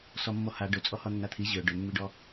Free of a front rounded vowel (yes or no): no